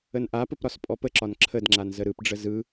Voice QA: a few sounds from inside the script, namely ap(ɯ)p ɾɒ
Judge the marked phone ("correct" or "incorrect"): incorrect